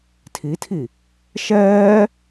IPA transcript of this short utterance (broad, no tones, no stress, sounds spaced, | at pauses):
tʰ i tʰ i | ʃ ɛː